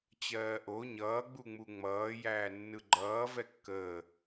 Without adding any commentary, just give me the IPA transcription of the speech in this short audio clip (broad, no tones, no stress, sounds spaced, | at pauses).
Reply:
t͡ɕ ɜː ʔ o ɲ ʌː ɡ͡b u ŋ͡m u ŋ͡m ʌː j æː nː ɯ ɡ͡ǃ ʌː v ɛ kː əː